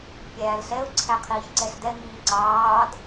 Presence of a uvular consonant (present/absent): present